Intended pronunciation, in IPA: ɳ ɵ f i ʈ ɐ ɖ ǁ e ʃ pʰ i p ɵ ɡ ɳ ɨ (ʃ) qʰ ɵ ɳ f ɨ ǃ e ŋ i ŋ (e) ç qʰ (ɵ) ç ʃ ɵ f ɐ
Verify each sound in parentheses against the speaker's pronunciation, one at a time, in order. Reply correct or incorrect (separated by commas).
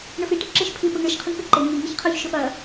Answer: correct, incorrect, correct